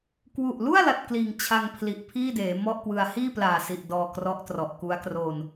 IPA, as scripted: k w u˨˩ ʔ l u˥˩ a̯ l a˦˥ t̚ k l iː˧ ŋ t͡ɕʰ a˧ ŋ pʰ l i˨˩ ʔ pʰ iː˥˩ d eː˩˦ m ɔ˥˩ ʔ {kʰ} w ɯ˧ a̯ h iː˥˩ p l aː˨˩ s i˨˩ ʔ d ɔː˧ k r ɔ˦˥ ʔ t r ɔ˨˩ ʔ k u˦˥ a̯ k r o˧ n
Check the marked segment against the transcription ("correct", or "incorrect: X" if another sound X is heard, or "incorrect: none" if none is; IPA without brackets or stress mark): incorrect: k